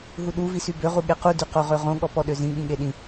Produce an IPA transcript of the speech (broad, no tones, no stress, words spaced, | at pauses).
ɦuɗuvisy bøʁu ɠequdy qoʁøʁõ ɠɔpɔɗøzĩ ɠĩɠeɗĩ